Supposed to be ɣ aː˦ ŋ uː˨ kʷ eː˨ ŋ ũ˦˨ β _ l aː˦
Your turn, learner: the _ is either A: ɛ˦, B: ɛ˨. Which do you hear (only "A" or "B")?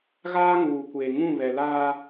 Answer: B